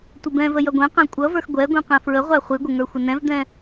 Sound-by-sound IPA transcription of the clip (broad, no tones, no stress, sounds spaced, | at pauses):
tʷ ɪ b ɛ̃ v ə j ʌ ɡʷ ɛ̃ q æ̃ kʷʼ ʌ v ə˞ x ɡʷ ɛ ɡʷ ĩ q ɛ̃ f ɹ ə ʁʷ æ χʷ i ɡʷ ɪ ŋ ə˞ xʷ ɪ n ɛ̃ v d̪ ɛ̃